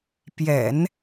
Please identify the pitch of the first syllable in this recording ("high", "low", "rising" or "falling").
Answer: low